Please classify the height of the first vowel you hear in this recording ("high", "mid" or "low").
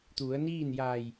high